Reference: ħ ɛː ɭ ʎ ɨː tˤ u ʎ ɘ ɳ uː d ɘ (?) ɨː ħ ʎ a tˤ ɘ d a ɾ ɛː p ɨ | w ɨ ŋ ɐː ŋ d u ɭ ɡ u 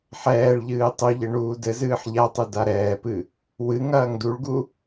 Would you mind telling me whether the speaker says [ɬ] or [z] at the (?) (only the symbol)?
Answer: z